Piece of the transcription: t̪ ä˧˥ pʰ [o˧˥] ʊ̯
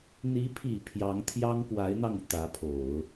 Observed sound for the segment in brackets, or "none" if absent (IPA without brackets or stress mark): o˨˩˦